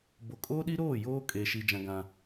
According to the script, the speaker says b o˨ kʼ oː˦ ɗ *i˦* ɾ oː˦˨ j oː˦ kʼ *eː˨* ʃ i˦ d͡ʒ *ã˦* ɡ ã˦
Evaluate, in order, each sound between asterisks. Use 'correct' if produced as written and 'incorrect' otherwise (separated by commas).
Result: correct, incorrect, correct